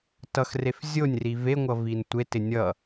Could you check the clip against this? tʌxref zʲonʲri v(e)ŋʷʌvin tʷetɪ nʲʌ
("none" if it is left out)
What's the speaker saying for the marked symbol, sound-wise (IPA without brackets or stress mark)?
e